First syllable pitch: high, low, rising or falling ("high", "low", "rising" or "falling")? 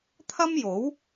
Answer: high